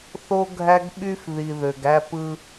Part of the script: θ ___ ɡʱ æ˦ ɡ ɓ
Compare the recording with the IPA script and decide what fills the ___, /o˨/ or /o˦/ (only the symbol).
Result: o˦